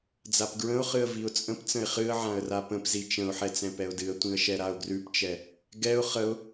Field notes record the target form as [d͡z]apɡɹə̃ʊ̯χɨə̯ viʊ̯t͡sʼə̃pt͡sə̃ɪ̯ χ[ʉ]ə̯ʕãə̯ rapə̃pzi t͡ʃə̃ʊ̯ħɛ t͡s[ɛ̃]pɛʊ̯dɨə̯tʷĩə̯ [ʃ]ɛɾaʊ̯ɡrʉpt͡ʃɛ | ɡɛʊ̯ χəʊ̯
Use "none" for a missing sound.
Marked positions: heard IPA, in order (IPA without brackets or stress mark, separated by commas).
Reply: d͡z, ɨ, ɛ̃, ʃ